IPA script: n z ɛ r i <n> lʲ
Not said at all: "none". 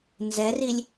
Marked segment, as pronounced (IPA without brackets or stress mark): none